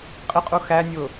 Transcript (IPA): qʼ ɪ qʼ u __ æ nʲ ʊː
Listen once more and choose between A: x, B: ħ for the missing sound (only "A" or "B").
A